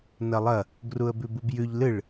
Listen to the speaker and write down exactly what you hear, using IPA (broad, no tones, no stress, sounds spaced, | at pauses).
n ɐ lˠ ɐ | ɡ r u ə̯ b ʉ b u b j ʉ ʎ l ɨ ɭ